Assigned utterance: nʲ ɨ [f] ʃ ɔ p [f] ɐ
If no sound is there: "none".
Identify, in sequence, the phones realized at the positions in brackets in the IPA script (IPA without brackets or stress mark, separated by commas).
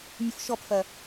f, f